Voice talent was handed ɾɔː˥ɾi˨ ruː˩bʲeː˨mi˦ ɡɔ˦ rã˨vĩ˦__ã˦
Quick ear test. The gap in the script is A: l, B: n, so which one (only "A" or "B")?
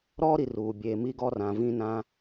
B